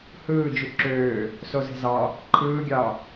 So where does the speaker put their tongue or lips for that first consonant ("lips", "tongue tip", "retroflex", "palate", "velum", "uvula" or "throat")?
throat